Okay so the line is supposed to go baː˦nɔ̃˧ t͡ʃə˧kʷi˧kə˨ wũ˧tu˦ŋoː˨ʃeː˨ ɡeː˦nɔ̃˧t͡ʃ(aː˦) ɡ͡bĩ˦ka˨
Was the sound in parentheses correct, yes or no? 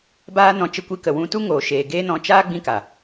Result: yes